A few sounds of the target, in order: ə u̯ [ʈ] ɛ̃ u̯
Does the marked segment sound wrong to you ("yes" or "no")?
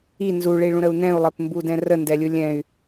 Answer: yes